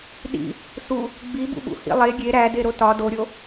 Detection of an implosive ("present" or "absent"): present